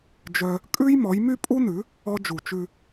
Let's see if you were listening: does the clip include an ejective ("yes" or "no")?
yes